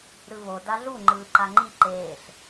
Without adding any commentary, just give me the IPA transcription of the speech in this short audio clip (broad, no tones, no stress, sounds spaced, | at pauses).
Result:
ɾ ɯ β o d a ɮ u ŋ͡ǃ ɯː ǃ a ŋ͡ǃ i ǃ eː ɬ